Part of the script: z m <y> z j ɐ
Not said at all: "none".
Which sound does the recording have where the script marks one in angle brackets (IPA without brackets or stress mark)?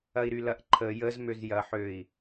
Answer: ø